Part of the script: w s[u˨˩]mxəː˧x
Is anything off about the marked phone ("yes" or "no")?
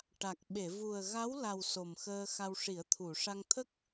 yes